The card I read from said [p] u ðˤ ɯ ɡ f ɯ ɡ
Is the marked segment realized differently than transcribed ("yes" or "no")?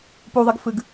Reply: no